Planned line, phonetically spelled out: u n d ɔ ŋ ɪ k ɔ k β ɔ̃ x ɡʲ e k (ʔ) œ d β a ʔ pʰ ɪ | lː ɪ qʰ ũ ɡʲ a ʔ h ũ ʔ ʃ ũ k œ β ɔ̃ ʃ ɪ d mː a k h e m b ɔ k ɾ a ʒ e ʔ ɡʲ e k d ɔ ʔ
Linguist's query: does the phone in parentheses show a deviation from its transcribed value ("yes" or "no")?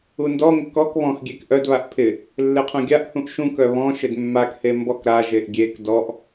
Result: no